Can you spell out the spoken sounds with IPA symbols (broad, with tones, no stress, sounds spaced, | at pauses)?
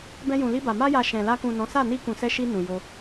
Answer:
b ɛ̃˧ j ũ˨ l i˧ b a˨ m a˧ j a˨ ʃ ɛ̃˨ l a˧ k ũ˨ n ɔ̃˨˦ s a˦˨ n i˧ k ũ˨ s ɛ˧ ʃ i˧ n ũ˨ j o˧